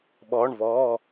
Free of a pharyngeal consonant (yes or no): yes